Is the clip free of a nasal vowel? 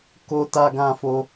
no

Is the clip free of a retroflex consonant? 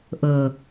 yes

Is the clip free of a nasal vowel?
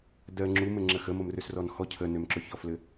yes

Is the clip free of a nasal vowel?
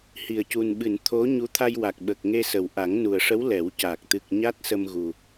yes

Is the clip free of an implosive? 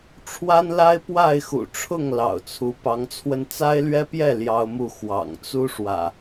yes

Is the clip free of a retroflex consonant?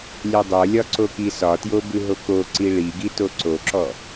no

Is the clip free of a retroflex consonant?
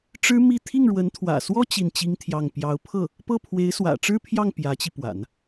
no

